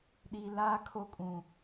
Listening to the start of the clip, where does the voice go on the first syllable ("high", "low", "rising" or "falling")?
high